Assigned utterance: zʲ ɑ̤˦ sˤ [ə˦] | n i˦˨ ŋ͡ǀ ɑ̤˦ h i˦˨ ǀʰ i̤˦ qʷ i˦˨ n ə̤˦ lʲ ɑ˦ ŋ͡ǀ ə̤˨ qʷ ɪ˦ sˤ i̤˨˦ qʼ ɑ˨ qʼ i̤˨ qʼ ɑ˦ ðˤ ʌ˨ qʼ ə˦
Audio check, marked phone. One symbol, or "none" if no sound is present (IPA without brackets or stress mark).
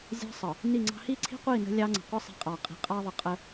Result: ə˨